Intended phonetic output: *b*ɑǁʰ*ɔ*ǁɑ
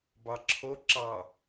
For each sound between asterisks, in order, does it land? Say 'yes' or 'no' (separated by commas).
yes, no